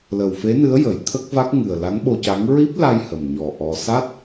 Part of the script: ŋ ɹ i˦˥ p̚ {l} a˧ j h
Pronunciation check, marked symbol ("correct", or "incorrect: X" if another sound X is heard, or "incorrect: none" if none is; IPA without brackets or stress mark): correct